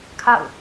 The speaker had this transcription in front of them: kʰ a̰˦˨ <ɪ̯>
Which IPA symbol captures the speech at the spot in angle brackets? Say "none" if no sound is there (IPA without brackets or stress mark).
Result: ʊ̯